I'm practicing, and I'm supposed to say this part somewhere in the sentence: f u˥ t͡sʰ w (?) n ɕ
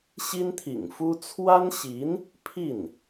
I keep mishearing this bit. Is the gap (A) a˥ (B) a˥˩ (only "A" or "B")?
A